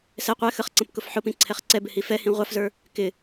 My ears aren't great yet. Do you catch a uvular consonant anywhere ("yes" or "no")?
yes